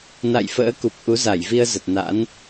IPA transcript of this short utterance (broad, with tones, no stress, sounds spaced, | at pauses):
n a̰˧˨ j f ə̰ː˧˥ k u˨˩ p̚ ʔ u˨˦ z a˧˩ j v i˧ ə̯ z ə˨˩ t̚ n a̰˧˥ n